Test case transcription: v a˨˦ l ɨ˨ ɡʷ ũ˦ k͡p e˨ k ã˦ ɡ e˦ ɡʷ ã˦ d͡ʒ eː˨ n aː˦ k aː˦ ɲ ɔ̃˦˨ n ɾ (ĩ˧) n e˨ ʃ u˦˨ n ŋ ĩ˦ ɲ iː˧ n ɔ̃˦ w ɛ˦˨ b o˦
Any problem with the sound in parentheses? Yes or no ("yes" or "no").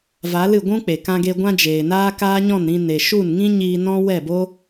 no